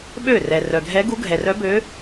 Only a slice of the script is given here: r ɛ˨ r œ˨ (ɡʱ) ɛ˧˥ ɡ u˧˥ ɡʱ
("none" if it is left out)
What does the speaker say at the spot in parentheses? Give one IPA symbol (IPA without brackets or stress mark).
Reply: ɡʱ